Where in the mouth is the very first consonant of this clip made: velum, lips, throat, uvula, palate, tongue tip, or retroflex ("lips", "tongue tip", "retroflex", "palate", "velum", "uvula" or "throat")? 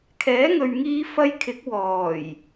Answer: velum